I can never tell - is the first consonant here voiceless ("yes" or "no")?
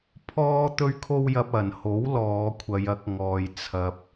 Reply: yes